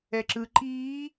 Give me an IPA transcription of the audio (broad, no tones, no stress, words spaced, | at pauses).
ɛǁɯ ǃiː